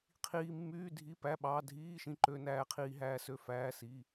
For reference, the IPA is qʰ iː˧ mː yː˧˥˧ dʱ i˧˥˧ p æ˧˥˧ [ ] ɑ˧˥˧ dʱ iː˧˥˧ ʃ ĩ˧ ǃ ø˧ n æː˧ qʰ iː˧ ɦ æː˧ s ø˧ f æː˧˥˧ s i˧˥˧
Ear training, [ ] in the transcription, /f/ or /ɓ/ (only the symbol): ɓ